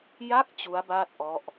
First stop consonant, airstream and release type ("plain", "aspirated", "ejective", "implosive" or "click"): plain